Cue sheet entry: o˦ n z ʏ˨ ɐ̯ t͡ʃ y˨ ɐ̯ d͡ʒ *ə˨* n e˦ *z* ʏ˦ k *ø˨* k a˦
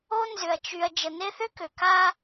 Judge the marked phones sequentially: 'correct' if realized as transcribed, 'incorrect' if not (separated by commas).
correct, incorrect, correct